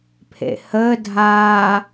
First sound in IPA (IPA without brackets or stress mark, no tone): pʰ